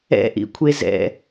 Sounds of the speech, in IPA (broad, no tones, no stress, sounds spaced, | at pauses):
ɛ̰ ʔ ḭ kʷʰ e z ɛ̰